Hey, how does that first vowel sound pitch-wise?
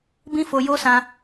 high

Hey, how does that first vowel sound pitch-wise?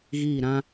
falling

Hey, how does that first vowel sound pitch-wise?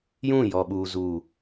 falling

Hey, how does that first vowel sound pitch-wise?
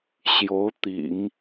rising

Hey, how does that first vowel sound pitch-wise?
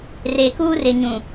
low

